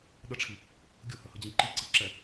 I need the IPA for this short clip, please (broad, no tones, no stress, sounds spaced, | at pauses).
ɗ ə ʈ͡ʂʰ i | ɡʲ ʊ h ə h ə d͡ʑ ĩ ǃ i ǀ i ǁ ɛ